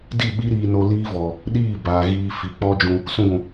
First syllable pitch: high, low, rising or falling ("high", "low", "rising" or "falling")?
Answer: falling